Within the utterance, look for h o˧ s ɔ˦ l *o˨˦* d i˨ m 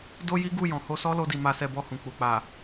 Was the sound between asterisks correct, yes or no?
no